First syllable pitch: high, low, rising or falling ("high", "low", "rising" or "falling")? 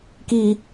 high